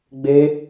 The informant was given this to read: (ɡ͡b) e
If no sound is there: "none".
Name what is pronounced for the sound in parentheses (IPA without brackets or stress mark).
ɡ͡b